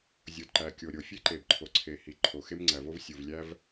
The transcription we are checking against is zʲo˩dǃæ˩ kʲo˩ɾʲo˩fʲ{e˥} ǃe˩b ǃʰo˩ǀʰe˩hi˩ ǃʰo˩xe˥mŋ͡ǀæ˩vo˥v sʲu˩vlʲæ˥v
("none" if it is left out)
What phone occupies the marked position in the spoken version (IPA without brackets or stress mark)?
e˥